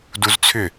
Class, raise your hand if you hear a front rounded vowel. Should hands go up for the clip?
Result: yes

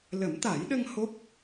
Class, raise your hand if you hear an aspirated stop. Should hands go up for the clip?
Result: no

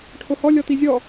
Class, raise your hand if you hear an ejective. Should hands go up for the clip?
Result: no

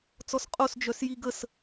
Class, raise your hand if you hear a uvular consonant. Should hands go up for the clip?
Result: yes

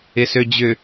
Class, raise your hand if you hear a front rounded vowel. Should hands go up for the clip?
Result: yes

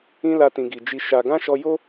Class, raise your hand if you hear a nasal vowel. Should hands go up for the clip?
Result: yes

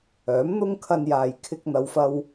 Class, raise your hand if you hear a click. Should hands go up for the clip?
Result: no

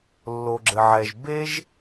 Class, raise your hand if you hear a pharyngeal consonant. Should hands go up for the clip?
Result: yes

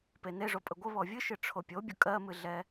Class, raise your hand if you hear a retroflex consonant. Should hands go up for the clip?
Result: yes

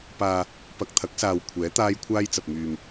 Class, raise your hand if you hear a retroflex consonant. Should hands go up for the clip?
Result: no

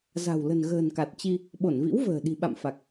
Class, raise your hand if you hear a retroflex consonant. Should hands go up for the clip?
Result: no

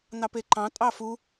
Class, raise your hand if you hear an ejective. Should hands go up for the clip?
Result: yes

